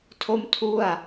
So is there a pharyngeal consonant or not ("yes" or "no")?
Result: no